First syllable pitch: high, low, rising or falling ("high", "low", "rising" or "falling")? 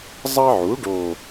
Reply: high